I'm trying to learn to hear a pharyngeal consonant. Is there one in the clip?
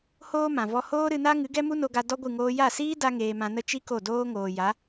no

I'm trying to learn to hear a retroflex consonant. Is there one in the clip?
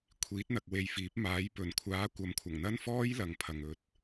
no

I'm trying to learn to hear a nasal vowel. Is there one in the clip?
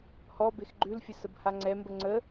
no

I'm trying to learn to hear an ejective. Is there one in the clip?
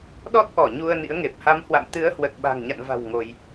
no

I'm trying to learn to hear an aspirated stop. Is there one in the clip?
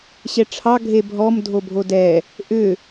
yes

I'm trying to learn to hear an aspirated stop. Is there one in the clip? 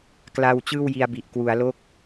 no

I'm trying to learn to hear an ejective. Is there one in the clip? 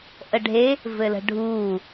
no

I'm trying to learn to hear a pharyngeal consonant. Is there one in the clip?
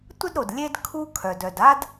no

